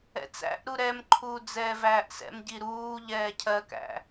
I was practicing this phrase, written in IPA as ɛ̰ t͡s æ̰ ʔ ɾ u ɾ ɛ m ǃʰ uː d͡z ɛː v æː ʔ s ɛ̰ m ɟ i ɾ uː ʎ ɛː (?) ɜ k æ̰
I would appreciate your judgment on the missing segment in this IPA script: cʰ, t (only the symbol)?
cʰ